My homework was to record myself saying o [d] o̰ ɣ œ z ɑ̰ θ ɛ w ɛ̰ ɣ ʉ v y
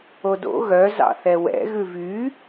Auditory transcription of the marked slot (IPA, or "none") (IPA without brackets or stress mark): d